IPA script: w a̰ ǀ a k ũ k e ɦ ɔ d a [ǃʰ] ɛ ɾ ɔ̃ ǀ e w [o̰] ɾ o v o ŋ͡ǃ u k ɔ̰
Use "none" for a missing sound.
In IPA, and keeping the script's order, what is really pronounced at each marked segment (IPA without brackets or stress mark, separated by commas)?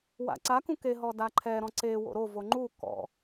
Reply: ǃʰ, o̰